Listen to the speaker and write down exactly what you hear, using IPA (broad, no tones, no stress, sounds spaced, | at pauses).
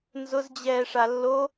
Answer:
n z ʊ z d͡ʑ ɛː ʂ a lː o